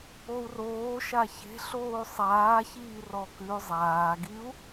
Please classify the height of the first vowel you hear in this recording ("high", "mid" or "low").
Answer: mid